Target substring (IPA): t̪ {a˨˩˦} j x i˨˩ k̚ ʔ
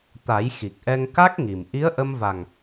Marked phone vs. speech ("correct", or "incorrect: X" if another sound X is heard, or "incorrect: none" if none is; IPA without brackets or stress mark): correct